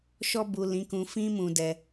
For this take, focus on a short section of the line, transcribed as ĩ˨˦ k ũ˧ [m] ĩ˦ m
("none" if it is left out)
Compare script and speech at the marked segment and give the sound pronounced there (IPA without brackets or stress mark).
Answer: f